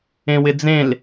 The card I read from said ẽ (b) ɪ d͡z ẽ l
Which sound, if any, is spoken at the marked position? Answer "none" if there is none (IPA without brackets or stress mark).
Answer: w